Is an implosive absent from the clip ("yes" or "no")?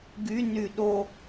no